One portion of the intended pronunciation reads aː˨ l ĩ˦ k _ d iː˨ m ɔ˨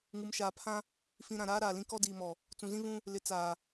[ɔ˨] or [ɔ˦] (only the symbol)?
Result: ɔ˦